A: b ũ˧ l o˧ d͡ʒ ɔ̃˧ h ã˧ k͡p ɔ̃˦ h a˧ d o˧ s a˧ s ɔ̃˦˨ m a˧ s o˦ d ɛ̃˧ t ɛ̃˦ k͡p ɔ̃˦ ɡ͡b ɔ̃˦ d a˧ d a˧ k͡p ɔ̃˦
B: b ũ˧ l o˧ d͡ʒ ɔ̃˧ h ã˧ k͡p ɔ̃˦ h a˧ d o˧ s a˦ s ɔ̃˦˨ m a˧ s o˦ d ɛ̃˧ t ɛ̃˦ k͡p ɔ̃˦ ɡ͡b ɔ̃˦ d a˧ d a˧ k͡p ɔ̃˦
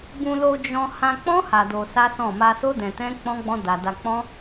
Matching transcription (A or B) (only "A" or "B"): B